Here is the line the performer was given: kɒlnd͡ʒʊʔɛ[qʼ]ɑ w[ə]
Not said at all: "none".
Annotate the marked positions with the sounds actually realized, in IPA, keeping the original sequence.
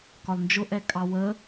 kʼ, ə

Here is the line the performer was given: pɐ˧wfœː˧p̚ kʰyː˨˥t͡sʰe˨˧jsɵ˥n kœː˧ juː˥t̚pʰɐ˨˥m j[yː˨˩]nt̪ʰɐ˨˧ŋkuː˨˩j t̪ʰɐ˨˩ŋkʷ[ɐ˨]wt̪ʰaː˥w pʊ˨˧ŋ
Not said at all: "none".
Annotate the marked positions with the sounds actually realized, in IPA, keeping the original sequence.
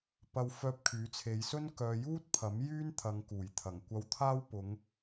yː˥, ɐ˧

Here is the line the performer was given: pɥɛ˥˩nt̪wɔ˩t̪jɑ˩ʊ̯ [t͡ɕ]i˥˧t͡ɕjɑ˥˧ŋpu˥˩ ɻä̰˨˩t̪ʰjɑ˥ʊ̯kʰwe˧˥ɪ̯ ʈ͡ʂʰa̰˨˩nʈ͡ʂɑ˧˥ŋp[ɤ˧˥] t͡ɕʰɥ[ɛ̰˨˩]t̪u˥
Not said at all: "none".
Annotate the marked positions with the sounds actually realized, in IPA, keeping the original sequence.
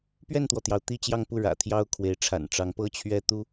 t̪, ɤ˥, ɛ˥

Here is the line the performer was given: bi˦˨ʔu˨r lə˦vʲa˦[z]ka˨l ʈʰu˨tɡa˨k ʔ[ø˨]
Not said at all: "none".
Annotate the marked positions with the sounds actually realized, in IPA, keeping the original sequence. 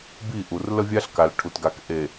ɬ, e˨

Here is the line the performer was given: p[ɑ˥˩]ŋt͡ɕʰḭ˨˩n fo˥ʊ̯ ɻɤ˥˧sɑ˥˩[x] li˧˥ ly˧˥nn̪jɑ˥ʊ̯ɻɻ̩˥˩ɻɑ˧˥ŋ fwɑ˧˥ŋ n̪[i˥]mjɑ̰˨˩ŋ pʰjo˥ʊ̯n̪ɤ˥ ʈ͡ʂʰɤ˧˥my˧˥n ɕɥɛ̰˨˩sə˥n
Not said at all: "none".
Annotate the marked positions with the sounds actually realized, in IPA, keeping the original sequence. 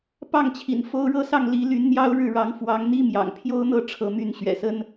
ɑ˥˩, ŋ, i˥

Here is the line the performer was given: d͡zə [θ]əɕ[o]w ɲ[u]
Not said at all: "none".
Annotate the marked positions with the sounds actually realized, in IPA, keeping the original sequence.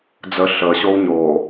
ɬ, o, o

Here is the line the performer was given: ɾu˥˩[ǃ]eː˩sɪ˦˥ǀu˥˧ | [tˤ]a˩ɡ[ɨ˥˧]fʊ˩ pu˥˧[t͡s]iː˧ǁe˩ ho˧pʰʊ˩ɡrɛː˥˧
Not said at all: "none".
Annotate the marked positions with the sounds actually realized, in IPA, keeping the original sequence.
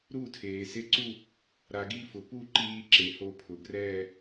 tʰ, ɾ, i˥˧, ǃ

